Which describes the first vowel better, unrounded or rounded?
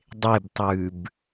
unrounded